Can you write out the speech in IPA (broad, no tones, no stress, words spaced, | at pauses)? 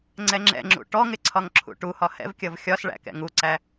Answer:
ŋ͡ǀɛŋ͡ǁɛ̰ŋ͡ǁṵ ʈɔŋɪ ǀʰɒŋǁʰṵʈuhɒ hɛ̰vkʲʌv xʲɒsɭæ̰ kɛ̰ŋuǀæ